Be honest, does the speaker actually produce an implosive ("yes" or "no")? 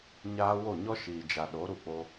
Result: yes